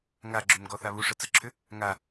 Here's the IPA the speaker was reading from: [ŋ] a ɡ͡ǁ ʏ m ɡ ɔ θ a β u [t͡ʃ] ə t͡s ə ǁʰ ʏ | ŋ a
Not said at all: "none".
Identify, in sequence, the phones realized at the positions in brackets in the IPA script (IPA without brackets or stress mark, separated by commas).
ŋ, ʂ